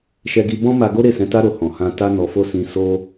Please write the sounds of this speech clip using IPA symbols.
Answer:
ʃ ɛ˧ ɡ i˧ b ɔ̃˦ m a˧ ɡ o˦ ɾ e˦˨ s ɛ̃˧ t a˦ ɾ o˧ h ɔ̃˨ h ã˧ t a˦ n ɔ˧ f o˦ s ĩ˦ s o˧

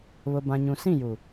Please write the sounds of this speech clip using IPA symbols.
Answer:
β ʊ˨ b ã˨ ɲ ũ˨ s ĩ˦˨ j u˨

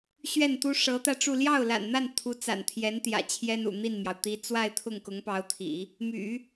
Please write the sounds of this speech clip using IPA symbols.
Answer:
ɕ ɥ ɛ˥˩ n t̪ u˥ ʂ ɤ˧˥ t̪ ä˧ ʈ͡ʂ u˥˧ l j ɑ˥˩ ʊ̯ l a̰˨˩ n n̪ a˥˩ n t̪ʰ u˧˥ t͡s a̰˨˩ n t̪ʰ j ɛ˧˥ n t̪ j ä̰˨˩ t͡ɕʰ j ɛ˥ n ṵ˨˩ n̪ i˥˩ n m j ɑ˩ ʊ̯ t̪ i˧˥ t͡s w a˥˧ ɪ̯ t̪ʰ ʊ˥˩ ŋ k ʊ˧˥ ŋ p ɑ˧˥ ʊ̯ t̪ʰ ḭ˨˩˦ | m y̰˨˩˦

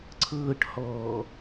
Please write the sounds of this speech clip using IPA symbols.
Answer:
ǀʰ ɤː ʈ h ɔː

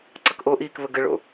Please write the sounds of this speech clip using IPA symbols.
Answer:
ǀ ʌ k ʔ o ʔ iː k β ə ɡ ə ɭ o̰

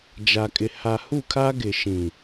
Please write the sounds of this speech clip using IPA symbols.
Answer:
d͡ʒ a˨ kʼ ɪ˨ h a˨ h u˦˨ kʰ a˦ ɡ ɪ˨ ʃ ĩ˨

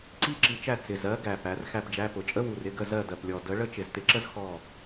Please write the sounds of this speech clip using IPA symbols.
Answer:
ǀ i˥ ǁ i˨˥ t͡ʃ æ˥˩ t͡s ɪ˨˩ z ɜ˨˥ ɡ æ˨˩ p æ˩˧ r x æ˥˩ p d͡ʒ æ˧˥˧ p ʊ˩˧ t͡ʃʼ ə˥ w u˨˩ r ɪ˧˥˧ ɡ ə˥˩ z ɜ˥˩ d ɜ˨˩ p lʲ ɔ˨˩ d ə˨˥ ɭ ə˥ t͡ʃ ɪ˨˩ z t ɪ˨˥ ǁ ə˥ z x ɔ˥˩

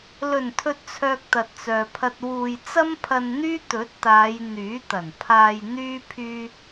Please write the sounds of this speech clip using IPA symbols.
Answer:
l ɵ˨˩ n t̪ʰ ɵ˨ t̚ t͡sʰ œː˨ k̚ t̪ ɐ˨ t̚ t͡s œː˨ pʰ ɐ˧ t̚ w uː˧ j t͡s ɐ˥ m pʰ ɐ˧ n n̪ yː˥ t̪ ɵ˨˥ t̚ t̪ aː˨˧ j n̪ yː˨˥ t̪ ɐ˨˩ n pʰ aː˧ j n̪ yː˥ pʰ yː˥

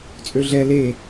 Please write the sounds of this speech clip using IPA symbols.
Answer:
t͡sʼ ø ɮ ɛ l e

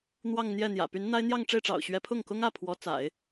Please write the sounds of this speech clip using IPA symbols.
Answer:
n̪ w ɑ˥˧ ŋ n̪ j ɛ˥˩ n̪ j ä̰˨˩ p y˧˥ n n̪ a˥ ɪ̯ n̪ j ɑ˥˧ ŋ ʈ͡ʂ e˥˩ ɪ̯ ʈ͡ʂ ɑ̰˨˩ ʊ̯ ɕ ɥ ɛ˧˥ pʰ ʊ˥˩ ŋ k ʊ˥ ŋ ä˥˩ pʰ w ɔ˧˥ t͡s a̰˨˩˦ ɪ̯

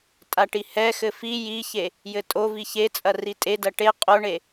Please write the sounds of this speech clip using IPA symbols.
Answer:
tʼ a ʈ i h ɛ x ɘ f i j i ç e | j ɘ tʼ o v i ç e t͡sʼ ɐ r i tʼ e d ɐ ʈ e qʼ o ɳ e

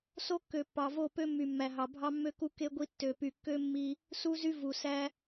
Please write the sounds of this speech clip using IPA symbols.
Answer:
s o˦ kː ø˨ pː ɑ˨ v o˦˨ p ø˦ mː y˨ mː æ˨ ɦ ɑ˨ bʱ ɑ˦ mː ø˦ k u˦ k e˦ ɡʷ i˦ tː ø˨ p y˨ kː ø˦ mː i˦ | s u˦ z y˦ v u˨ s æ˦

